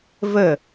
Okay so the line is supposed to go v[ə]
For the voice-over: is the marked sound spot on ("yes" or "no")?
yes